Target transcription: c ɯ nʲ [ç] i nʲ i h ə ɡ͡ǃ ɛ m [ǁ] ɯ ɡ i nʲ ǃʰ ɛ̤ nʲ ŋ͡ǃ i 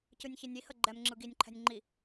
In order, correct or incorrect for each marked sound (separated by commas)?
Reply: correct, incorrect